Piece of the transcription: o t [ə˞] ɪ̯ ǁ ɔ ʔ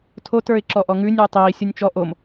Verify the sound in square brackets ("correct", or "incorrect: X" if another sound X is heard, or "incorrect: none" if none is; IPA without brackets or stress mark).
correct